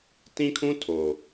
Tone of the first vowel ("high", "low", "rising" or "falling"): high